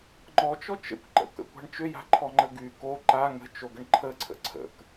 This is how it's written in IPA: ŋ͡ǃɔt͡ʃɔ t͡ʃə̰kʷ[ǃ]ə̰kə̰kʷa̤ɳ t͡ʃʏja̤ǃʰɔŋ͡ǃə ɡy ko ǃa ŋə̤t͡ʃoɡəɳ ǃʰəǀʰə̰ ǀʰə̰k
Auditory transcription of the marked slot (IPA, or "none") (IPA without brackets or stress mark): ǃ